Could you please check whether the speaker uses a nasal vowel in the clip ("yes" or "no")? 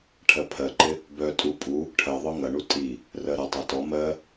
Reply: no